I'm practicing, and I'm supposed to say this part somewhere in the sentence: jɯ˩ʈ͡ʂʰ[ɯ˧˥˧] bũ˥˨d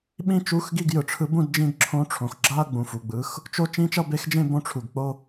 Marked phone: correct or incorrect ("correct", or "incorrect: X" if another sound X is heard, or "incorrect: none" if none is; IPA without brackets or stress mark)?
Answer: incorrect: ɯ˧˥